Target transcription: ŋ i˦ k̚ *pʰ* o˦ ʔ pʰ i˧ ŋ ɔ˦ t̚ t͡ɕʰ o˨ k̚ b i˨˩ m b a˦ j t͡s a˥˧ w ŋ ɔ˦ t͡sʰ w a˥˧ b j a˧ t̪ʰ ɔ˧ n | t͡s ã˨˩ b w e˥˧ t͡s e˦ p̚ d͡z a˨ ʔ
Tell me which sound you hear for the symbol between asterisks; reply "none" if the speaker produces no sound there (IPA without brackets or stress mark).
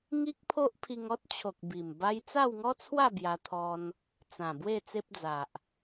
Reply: pʰ